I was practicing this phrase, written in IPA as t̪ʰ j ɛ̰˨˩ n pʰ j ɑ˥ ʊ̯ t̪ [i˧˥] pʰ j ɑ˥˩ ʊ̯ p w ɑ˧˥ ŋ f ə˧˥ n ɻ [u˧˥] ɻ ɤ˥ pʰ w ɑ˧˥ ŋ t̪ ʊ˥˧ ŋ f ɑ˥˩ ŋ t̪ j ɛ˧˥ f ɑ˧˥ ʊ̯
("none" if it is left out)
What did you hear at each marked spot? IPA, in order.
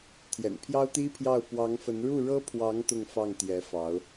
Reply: i˥, u˥˩

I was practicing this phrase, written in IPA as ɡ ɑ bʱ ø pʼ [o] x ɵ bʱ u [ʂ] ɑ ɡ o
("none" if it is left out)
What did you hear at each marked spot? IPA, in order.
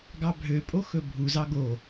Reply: o, z

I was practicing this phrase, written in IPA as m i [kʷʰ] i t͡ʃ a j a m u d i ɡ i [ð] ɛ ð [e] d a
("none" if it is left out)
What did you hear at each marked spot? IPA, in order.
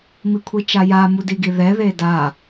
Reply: kʷʰ, ð, e

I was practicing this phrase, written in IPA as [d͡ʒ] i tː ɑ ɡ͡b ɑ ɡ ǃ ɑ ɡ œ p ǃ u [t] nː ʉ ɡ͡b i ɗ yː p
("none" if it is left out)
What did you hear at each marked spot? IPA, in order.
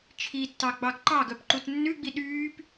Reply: t͡ʃʰ, t

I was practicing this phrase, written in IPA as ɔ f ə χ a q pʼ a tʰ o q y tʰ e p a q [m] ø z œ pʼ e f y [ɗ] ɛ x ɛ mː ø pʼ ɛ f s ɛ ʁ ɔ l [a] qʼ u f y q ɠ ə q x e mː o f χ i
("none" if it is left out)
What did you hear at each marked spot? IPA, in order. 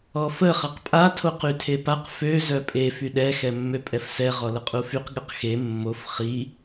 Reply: f, ɗ, ə

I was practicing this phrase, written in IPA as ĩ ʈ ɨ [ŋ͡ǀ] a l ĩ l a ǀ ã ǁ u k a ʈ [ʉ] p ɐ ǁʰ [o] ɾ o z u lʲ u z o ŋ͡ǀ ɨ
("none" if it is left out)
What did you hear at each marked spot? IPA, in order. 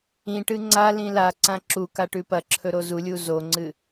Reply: ŋ͡ǀ, ʉ, ɵ

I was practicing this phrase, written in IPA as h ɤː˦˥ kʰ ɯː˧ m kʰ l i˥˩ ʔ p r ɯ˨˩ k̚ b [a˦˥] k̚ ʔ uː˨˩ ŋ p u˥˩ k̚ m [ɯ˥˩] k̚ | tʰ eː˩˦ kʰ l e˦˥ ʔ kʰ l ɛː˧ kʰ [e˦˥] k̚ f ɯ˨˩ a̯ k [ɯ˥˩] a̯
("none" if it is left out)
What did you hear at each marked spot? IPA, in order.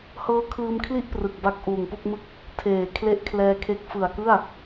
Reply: a˦˥, ɯ˥˩, e˦˥, ɯ˥˩

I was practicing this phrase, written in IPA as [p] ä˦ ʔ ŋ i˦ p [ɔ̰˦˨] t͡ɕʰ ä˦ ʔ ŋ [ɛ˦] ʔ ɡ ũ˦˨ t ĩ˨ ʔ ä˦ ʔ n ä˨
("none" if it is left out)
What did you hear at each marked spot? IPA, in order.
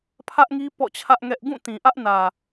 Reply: pʰ, ɔ̰˦˨, ɛ˦

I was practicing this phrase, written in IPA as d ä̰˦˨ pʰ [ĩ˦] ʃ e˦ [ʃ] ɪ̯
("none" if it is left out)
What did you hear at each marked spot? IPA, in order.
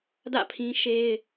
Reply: ĩ˦, none

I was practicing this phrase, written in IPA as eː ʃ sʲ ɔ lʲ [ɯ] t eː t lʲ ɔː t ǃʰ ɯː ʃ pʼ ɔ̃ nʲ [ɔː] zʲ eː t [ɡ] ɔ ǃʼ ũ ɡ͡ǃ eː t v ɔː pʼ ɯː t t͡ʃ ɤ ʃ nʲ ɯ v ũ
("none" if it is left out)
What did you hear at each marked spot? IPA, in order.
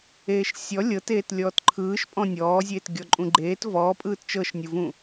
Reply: ɤ, ɔː, ɡʲ

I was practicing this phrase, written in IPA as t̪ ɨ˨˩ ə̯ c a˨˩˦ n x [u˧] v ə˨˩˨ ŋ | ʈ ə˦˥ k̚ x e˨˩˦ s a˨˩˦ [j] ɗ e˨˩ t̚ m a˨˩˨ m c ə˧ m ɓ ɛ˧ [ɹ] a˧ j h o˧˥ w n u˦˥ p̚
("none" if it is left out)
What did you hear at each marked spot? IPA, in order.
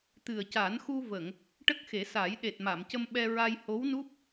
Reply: u˧, j, ɹ

